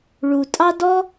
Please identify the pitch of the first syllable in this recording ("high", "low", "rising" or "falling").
low